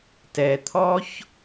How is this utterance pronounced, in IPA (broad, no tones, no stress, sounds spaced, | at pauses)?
t ɛ t̪ʰ ɔ ç